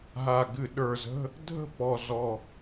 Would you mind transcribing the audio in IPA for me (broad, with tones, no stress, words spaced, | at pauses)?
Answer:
ɦa˨˩ɡɨ˧˩˧ ɗə˞˨˩zə̤˧˥˧ | dʱə̤˥˩ pɔ˨˩zɔ˨˩